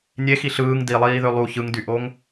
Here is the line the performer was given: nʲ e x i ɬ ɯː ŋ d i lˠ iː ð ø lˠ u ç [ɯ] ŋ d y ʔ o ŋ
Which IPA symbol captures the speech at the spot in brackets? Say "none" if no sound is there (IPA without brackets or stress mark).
ɯ